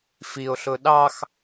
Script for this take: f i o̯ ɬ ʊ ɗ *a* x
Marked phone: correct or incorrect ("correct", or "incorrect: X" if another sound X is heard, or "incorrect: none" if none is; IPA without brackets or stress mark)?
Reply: incorrect: ɑ